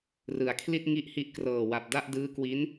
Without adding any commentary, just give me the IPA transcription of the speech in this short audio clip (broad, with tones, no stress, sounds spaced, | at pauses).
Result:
r ɯ˩˦ a̯ kʰ l i˥˩ t̚ ŋ i˥˩ ʔ h i˥˩ ʔ k r ɤː˨˩ w a˨˩ p̚ d a˥˩ ʔ d ɯː˦˥ k w i˦˥ n